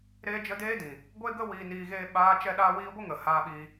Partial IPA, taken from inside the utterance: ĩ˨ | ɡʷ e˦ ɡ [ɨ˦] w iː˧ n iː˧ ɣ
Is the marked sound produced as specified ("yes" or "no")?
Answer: no